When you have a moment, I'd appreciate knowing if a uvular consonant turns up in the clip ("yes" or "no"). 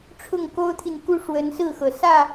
no